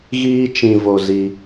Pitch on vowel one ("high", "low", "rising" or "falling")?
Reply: high